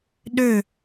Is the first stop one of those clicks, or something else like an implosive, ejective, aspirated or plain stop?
implosive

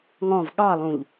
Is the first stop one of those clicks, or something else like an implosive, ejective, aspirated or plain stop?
implosive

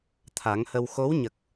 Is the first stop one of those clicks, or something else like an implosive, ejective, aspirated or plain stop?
aspirated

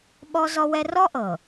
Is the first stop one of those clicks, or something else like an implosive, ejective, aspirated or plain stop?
implosive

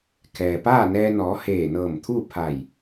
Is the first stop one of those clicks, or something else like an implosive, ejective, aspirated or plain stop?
aspirated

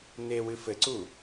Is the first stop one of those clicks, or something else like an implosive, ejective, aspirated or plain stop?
click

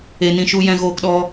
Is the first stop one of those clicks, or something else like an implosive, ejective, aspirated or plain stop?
plain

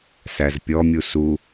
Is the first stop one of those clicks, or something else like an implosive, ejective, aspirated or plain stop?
plain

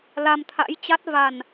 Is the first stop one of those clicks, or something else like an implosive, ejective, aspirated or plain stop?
aspirated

